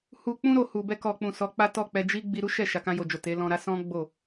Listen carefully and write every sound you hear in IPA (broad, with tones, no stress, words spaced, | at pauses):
hu˧k͡pũ˦ɾo˧hu˨ bɛ˧kɔ˨k͡pũ˨ sɔ˨˦k͡pa˦tɔ˦˨ k͡pɛ˧d͡ʒi˦ ɡ͡bi˧ɾu˦ʃɛ˦˨ ʃa˨kã˧jo˨d͡ʒo˨ te˨˦ lɔ̃˧ɾa˦ sɔ̃˦ ɡ͡bo˦˨